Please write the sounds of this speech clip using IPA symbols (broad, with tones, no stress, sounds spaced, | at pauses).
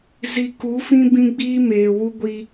z i˨ k u˨˦ f ĩ˦ b ĩ˦ ɡ͡b iː˦ m eː˨ w u˦ ɡʷ i˦